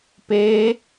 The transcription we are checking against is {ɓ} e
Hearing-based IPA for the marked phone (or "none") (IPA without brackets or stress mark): p